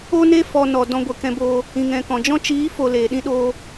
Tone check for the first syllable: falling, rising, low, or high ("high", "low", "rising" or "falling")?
high